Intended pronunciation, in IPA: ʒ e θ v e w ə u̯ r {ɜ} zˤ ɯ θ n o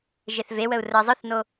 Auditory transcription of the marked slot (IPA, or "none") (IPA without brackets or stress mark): ɜ